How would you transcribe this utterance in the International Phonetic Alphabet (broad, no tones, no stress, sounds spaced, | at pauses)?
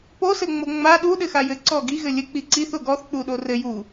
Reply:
p o s ɘ ŋ͡m o ŋ͡m a ɗ u ɗ ɘ x a j ɘ ǀ ɔ ɡ i ɣ ɘ lʲ ɘ k͡p i ǀ i θ o ɡ ɔ θ k͡p u ɗ o r ɘ j u